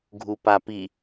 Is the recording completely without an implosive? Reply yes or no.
yes